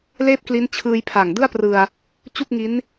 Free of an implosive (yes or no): yes